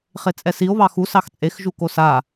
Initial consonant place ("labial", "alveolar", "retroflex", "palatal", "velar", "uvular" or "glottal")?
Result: uvular